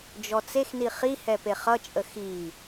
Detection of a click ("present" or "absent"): absent